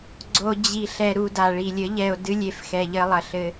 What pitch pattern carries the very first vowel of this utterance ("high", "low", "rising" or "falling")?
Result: low